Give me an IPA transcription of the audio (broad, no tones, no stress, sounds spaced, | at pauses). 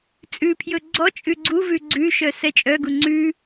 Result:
t͡sʼ ʉ pʰ j ɵ ɡ͡ǀ ɔ t͡ʃʼ ʉ ɡ͡ǀ u v ʉ ɡ͡ǀ ʉ ʃ œ s ɛ t͡ʃʼ œ ɡ u ŋ͡ǀ ʉ